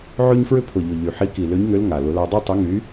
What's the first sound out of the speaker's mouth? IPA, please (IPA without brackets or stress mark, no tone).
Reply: ʕ